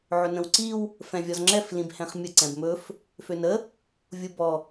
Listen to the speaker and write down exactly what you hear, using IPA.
ʕɵnə̃wǀiw | fɛ̃vʲɔzŋ͡ǁɛf lĩbhɛ̃χmʲə ǀɛ̃bmɵf | fønə | vʲubɔ

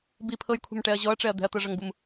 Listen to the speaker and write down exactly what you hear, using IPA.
bi pʰɤjkʷʰɛ̤mʈɛɐ̯ ʑɔɐ̯ʈ͡ʂɛɐ̯ d̪ɛ̤ɐ̯t̪ɤʐʌŋbum

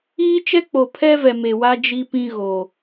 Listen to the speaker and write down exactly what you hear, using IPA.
iː˦ t͡ʃɛ˦k͡po˨pʰɛ˦vɛ˨ me˨wa˦ d͡ʒi˦pĩ˦ ɣo˨

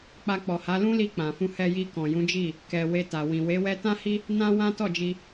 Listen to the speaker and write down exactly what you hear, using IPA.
k͡pa˧k͡pɔ˨ha˨˦ lũ˦li˧ k͡pã˨fũ˧ hɛ˧ji˧ kɔ̃˨jũ˨˦d͡ʒi˦˨ | kɛ˨we˧ta˨ wĩ˨ we˨˦wɛ˦ tã˦hi˦ | nã˦ wã˦tɔ˦˨d͡ʒi˧

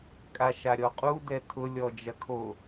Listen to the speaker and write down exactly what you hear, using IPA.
kʼaʃaɾʲɔqʼu dɛtʰʊ lʲɔd͡ʒɐkʰo

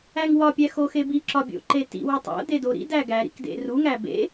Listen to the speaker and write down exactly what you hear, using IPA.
æŋwɒpʲæ xoxebiǁɒ bʲo̰ǃetḭwo tˤo̰ dedoɾḭdæ ɡæɾḭk dḛruŋæ bḛ

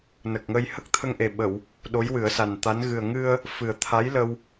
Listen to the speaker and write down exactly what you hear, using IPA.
nə˨˩k̚ŋə˧j hə˦˥k̚t̪ʰə˧ŋʔe˨˩ ɓə˨˩˨w | ɗo˧˥jwɨ˨˩˦ə̯sa˨˩nt̪a˧˥n ɣɨ˨˩ə̯ŋɨ˧ə̯ | fɨ˨˩ə̯t̪ʰa˧˥jlə˧w

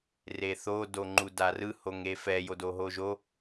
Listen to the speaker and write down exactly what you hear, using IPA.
reθo doŋ͡ǃudarɯ hoŋefɛ jodoɦoʒo

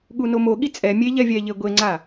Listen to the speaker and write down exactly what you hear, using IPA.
ɠunomo ɠit͡sʼɛ mʲe ʎɛvʲɛʎe ɡʷeŋ͡ǀa

